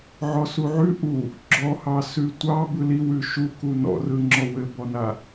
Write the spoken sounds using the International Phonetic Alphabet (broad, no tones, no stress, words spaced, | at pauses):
ʕɔsuʕʉ ʔu | ɡ͡ǁɔhɑ sʉtʷɑ bɯliwʉ ʃuku nɔ̰rɯŋ͡ǁɔ wɘbɔna